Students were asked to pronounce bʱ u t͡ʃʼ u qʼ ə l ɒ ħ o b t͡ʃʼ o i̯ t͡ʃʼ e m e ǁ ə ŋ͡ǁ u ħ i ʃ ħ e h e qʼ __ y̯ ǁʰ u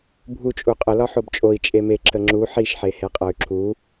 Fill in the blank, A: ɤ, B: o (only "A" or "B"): A